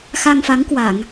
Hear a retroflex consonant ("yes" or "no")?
no